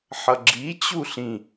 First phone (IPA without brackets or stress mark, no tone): ħ